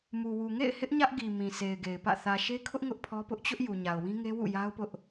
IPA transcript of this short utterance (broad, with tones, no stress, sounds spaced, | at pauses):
m u˨ w u˨ ŋ ḛ˦˨ ɪ̯ h ɪ˦ ʔ ɲ ä˦ ʔ ɡ i˨ m ĩ˨ s e˨ ɪ̯ ɡ e˨ ɪ̯ p ä̰˦˨ θ ä˨ ʃ e˦ kʰ ʊ˦ ʔ ŋ ʊ˦ ʔ pʰ ɔ˦ p ʊ˦ ʔ t͡ɕ ʊ˦ ʔ j u˨ ɲ a˨ ʊ̯ w ĩ˦ ŋ e˦ w ṵ˦˨ j a˦ ʊ̯ p ʊ˦ ʔ